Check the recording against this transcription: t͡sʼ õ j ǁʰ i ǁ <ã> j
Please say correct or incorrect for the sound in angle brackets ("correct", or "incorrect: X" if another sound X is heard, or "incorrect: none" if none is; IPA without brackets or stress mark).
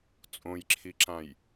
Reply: correct